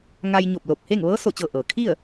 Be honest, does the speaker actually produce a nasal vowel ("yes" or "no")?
no